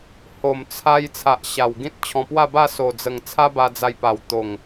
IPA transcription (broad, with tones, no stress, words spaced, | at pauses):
ho˨˩mt͡sʰa˧j t͡sʰa˨ʔɕa˨˩w ɡĩ˦t̚t͡ɕʰɔ̃˧ pwa˥˧ba˥˧ so˨˩d͡zə˨˩ŋ t͡sʰa˦ba˧d͡za˧j pa˨˩w t̪o˨˩ŋ